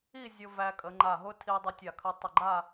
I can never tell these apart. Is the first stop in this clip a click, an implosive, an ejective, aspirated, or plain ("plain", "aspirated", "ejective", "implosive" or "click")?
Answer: ejective